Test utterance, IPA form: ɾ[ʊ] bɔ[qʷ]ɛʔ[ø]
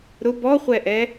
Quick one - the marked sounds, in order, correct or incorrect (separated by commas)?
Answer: correct, incorrect, incorrect